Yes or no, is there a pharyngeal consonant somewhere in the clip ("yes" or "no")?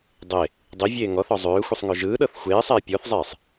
no